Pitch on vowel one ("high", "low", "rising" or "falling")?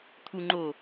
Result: low